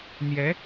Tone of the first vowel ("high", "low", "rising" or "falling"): rising